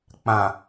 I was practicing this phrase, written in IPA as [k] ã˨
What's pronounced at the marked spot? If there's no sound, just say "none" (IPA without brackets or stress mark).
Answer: k͡p